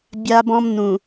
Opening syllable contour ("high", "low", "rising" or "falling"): high